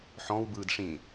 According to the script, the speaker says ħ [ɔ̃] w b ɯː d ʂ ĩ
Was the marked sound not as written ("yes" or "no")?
no